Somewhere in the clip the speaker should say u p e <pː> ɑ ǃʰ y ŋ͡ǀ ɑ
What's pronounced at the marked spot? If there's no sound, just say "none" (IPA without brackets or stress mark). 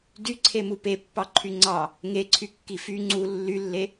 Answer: pː